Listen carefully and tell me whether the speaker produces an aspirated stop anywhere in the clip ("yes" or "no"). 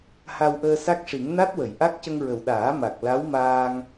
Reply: no